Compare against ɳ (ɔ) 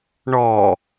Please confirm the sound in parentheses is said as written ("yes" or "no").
yes